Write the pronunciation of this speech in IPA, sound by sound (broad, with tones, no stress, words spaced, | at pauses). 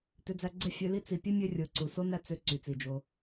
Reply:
tø˧d͡zæ˧ɡ͡ǀe˦ fʲø˧li˦ t͡si˨pʲe˦mʲø˧rʲɯ˨ ǀu˨ so˦ næ˦t͡sø˧ ǀy˨t͡si˨ d͡ʒo˧